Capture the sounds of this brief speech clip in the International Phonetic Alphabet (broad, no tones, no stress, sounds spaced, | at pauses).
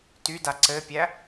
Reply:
t y d a ǀ ɘ pʲ æ